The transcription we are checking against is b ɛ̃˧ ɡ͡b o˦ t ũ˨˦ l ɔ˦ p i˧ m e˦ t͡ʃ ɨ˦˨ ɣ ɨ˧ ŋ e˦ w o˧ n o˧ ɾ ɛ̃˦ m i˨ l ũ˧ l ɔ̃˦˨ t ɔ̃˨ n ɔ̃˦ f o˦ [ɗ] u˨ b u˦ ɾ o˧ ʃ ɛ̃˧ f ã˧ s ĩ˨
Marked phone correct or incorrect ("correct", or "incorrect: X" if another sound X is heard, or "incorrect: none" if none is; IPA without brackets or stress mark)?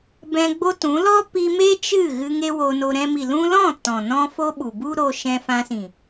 incorrect: ɓ